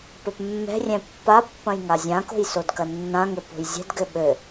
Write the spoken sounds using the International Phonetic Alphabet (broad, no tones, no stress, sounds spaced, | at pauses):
p ɘ p mː ɛ̤ rʲ ɛ̃ pː a pː ɐ̃ j ŋ a zʲ ã k o̤ j s o d k ɐ nː ã ŋ ɘ p o̤ j zʲ ɛ̤ d ɡ ɘ ɓ ɘ